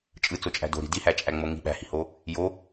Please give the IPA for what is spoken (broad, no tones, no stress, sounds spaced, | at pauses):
t͡ʃʼ ɯ t͡s o t͡ʃʼ æ̤ d o̤ ɾ i̤ d i h æ t͡ʃʼ æ ŋ͡m o ŋ i̤ ɓ æ̤ h i̤ h o | j o